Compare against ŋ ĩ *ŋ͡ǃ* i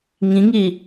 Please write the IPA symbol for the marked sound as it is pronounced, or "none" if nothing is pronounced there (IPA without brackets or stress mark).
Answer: ŋ